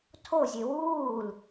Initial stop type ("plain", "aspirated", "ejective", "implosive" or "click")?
aspirated